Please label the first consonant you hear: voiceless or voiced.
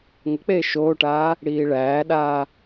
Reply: voiced